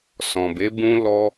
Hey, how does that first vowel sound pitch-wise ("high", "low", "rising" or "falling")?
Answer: low